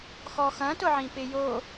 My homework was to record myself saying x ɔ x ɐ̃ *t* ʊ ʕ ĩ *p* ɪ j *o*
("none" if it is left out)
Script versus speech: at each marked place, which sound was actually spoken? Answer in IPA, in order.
t, p, o

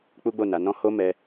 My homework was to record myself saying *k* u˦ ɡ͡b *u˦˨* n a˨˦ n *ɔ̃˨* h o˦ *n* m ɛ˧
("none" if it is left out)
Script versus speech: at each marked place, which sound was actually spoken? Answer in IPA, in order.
k͡p, o˦˨, ɔ̃˦, none

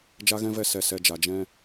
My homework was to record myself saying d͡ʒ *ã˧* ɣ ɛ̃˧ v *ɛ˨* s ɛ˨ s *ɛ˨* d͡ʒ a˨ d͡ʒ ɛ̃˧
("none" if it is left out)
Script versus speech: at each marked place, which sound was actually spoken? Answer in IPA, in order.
a˧, ɛ˧, ɛ˨

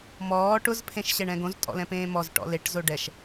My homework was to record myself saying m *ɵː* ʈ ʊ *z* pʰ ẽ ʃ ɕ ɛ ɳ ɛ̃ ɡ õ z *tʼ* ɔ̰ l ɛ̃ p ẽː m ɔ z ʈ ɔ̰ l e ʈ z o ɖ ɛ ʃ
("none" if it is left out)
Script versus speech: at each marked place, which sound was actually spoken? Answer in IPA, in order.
ɔː, z, tʼ

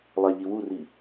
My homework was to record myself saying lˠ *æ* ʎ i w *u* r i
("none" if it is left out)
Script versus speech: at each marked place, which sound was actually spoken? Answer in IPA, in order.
æ, u

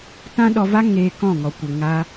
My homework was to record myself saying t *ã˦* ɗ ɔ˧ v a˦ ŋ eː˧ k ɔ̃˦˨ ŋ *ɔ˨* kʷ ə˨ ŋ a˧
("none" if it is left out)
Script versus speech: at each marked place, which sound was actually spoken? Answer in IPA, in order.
ã˦, ɔ˨

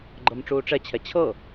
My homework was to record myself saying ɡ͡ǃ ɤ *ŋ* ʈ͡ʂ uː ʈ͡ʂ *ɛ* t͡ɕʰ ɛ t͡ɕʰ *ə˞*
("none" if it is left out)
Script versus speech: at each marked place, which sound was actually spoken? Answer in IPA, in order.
m, ɛ, ɤ

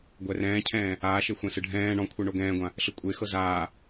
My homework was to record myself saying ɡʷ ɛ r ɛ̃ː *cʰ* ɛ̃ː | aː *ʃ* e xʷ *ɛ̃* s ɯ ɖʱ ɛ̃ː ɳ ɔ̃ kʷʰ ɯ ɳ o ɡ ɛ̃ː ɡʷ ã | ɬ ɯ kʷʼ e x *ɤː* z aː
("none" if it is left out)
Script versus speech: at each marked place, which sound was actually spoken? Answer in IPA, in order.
cʰ, ʃ, ɛ̃, ɤ

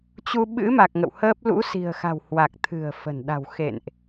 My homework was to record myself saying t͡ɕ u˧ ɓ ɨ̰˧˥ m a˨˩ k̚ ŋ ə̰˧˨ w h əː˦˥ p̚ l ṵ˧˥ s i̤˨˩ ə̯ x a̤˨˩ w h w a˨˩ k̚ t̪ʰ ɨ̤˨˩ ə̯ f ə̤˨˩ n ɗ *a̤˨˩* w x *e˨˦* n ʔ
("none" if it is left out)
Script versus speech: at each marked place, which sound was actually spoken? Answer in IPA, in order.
a̤˨˩, ḛ˧˨

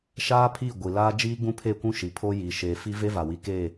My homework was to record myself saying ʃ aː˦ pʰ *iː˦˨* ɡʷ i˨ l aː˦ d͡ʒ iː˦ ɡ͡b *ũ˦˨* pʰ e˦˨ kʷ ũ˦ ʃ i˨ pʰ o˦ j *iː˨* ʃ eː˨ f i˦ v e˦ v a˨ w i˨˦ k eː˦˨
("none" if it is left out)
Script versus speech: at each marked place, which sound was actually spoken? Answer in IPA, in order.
iː˦˨, ũ˦, iː˨

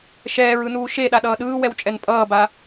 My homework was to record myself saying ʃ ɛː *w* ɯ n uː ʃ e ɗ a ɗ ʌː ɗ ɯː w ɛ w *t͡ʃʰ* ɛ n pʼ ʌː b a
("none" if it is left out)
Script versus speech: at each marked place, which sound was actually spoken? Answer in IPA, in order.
ɹ, t͡ʃʼ

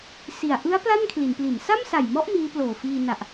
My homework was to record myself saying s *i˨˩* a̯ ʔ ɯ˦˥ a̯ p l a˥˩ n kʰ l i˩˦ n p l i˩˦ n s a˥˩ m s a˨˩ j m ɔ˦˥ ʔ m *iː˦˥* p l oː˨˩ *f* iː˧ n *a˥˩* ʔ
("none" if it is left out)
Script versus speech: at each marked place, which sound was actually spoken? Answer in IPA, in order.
i˨˩, iː˦˥, f, a˨˩

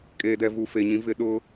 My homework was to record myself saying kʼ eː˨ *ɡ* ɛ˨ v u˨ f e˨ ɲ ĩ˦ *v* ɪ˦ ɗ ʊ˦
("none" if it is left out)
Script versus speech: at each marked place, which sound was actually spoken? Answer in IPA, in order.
d, v

